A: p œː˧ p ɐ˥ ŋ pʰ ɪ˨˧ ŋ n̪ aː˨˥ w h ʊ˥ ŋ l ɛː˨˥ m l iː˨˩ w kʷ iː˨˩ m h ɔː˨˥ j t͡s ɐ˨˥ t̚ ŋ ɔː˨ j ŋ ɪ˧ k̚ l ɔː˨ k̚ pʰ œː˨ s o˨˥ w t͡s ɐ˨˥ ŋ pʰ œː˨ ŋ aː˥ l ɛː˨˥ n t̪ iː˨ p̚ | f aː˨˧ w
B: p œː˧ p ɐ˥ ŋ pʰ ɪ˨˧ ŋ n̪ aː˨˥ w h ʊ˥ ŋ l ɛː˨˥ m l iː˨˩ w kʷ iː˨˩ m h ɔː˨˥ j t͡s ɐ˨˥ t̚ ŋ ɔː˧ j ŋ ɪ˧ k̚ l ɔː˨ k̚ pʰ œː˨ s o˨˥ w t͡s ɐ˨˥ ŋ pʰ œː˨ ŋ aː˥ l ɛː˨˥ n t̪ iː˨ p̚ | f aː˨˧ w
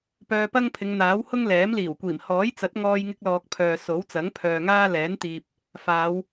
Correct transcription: B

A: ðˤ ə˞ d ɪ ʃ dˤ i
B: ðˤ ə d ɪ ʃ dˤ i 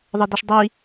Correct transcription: B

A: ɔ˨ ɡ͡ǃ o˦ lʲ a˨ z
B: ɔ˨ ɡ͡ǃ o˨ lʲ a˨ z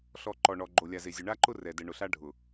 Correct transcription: B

